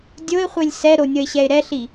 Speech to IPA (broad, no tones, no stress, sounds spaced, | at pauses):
dʲ o ɪ̯ χʷ e lʲ s ɛ ɾ o nʲ ʌ ɪ̯ ɕ ɛ ɪ̯ ɾ ɛ ɬ i